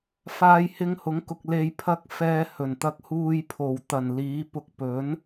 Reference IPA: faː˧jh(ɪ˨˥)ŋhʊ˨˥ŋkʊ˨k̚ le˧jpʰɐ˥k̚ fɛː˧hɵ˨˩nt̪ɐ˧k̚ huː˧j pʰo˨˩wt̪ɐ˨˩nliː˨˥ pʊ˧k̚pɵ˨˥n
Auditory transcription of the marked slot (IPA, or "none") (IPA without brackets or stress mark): ɪ˧